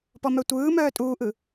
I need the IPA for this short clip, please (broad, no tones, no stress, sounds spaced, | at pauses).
p ɔ m œ tʷ ɯː m œː tʼ uː ʔ ɯ